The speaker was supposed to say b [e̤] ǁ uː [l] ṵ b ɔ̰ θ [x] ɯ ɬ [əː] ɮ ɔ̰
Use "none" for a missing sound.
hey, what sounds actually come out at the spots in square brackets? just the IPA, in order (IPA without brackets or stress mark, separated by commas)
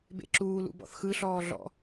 ḛ, l, x, ɔː